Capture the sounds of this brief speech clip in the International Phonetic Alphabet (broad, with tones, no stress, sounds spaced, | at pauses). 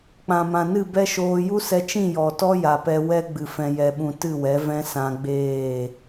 k͡p ã˨ m ã˨ n ɨ˦˨ b ɛ˦ ʃ oː˧ j u˦ s ɛ˧ t͡ʃ ĩ˦˨ j ɔ˨ t ɔ˦ j a˨ p ɛ˧ w ɛ˦ ɡ͡b ɨ˨ f ɛ̃˨ j ɛ˨ ɓ ũ˨ t ɨ˦˨ w ɛ˨˦ v ɛ̃˦ s ã˧ ɡ͡b eː˦˨